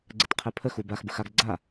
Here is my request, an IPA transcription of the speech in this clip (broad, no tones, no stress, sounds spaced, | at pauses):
ɡ͡ǀ ɘ t qʰ ɛ pʰ ə x u b a x b ə x a ɡ ɡ͡ǀ a